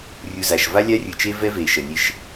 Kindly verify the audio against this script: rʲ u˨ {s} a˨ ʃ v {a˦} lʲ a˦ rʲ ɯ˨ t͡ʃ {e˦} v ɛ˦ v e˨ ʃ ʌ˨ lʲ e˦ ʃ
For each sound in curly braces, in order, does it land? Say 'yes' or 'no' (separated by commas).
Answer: no, yes, yes